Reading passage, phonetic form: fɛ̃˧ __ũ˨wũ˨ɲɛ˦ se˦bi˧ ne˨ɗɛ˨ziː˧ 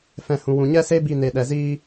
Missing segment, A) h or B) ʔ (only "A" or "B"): A